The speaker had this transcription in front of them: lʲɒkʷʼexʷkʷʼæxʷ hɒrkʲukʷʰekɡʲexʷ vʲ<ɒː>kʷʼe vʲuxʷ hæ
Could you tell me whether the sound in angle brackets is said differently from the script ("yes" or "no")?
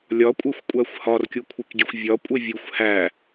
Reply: yes